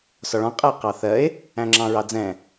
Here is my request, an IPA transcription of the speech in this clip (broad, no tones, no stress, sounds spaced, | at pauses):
s ɒ ɭ ɔ̃ qʼ æ q ɑ θ ɜ e̯ | æ̃ ŋ͡ǁ ɑ̃ ɹ ɑ d͡z ɛ̃